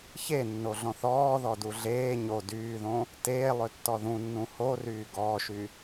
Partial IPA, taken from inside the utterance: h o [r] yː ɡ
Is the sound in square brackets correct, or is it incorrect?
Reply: correct